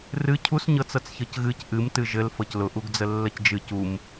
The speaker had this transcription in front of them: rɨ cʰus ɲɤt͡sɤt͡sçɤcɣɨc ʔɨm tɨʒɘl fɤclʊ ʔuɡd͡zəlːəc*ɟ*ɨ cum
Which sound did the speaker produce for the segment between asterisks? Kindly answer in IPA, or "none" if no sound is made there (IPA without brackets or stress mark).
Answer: d͡ʒ